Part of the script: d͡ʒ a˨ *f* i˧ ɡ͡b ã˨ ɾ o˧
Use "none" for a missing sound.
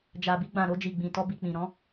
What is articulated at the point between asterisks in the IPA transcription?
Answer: b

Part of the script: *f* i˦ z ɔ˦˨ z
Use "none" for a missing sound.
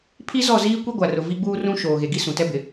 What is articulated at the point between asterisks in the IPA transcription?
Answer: pʰ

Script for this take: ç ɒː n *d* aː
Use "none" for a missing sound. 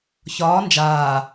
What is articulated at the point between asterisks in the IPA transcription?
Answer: d͡ʒ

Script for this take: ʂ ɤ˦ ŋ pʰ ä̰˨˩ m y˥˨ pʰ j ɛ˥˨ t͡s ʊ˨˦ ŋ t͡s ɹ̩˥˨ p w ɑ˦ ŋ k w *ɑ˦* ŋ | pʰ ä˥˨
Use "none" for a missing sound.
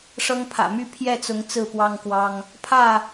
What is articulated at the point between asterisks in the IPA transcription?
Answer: ɑ˦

